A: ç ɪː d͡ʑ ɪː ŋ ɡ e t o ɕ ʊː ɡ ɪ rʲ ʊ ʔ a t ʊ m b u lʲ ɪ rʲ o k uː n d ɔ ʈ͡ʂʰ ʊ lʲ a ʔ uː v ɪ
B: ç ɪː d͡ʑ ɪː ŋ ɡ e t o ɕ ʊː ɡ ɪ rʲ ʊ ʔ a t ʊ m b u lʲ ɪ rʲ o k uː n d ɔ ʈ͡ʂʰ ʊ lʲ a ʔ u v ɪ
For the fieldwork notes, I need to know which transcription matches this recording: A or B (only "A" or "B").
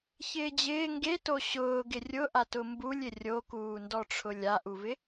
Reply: B